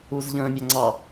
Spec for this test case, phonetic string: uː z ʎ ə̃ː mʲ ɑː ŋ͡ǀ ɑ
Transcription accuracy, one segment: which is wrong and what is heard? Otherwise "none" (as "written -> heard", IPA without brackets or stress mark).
ɑː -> ɑ